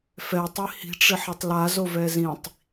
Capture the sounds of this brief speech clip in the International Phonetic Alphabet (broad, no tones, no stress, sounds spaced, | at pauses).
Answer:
f ɛ tˤ i h i̤ ʈ͡ʂ ɪ ħ a tˤ l a z o v ɛ z ĩ tˤ